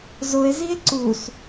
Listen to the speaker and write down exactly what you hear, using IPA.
z ʊ e̯ z i e̯ ǀ u s

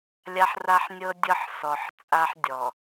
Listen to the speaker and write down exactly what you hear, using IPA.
lʲ a˦ ħ r a˦ ħ nʲ ɤ˦ dʲ ɤ˦ ħ s ɔ˨ ħ t͡sʼ a˦ ħ dʲ ɔ˨

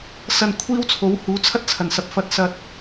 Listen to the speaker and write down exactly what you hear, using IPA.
s ɐ˨ n kʷʰ iː˥ w t͡sʰ o˨˥ w h uː˨˥ t͡sʰ ɐ˥ t̚ t͡sʰ ɐ˨˩ n s ɐ˧ p̚ f ɐ˧ t̚ s ɐ˧ t̚

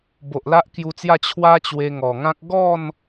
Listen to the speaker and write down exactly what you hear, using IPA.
b o˨ ʔ l a˦ ʔ k j u˧ t͡s j a˥˧ t͡ɕʰ w a˦ t͡ɕ w e˧ ŋ ɔ˨˩ ŋ ã˦ k̚ ɡ ɔ˥˧ n

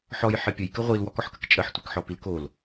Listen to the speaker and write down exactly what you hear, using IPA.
ħ ɔ j ħ ɘ pʲ ə j k ə ʁʷ i l w ɔ k ɔ ħ k ə k t͡ʃʼ ə ħ tʷ i k ħ ɔ p i l k o l

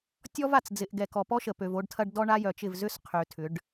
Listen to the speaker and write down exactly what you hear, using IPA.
tʲ ɔ˦ v a˨ t͡s d͡z ɪ˨ ʔ ɡ ɛ˨ k ɔ˨ p ɔ˦ ʃ ə˨ p ø˨ v o˦ ɖ tʰ ɐ˦ ɖ d ɔ˦ ɳ a˦ j œ˨ t͡ʃ ɪ˦˨ v z ʏ˦ s qʰ ø˨ tʰ ʏ˨˦ ɖ

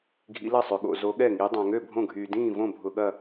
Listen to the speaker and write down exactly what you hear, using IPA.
ɡʱ ḭ˧˥ l ɐ˥˨ sˤ ø˧ ɠ o̰˧ z o˧˥ ɠ ɛ˥˨ ŋ i˧˥ dˤ ã˧ ŋ ø˥˨ bʱ õ˥˨ ɡʱ yː˧ d ĩː˥˨ v õ˥˨ bʱ ʊ˧ ɠ ɐ˥˨

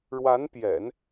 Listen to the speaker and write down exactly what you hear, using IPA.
ɻ w a˧˥ n p j ɛ̰˨˩˦ n

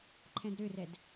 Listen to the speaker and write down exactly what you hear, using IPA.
ǃʰ ɛ̃ d ɾ ø r ɛ d

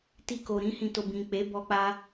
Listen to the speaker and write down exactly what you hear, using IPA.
t i˧ k o˨ ɾ ĩ˧ h ĩ˨ t o˨ b ĩ˨ k͡p e˨˦ b ɔ˧ k͡p a˧

